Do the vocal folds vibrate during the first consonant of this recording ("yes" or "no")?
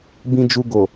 yes